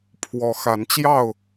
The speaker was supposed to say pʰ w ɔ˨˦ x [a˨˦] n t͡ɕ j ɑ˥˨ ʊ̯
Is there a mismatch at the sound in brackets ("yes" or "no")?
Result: no